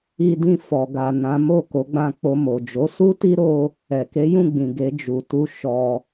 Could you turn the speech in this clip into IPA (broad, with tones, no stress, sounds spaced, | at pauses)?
i˧ d ĩ˧ f ɔ˨ ɡ a˨ n ã˨˦ m o˦˨ k o˨˦ ɡ͡b ã˧ k͡p o˧ m o˨ d͡ʒ o˨˦ s u˦ t i˦ ɾ o˦ | ɛ˨ k e˨˦ j ũ˦˨ ɡ͡b ĩ˨ ɡ e˨˦ d͡ʒ u˧ t u˦ ʃ ɔ˧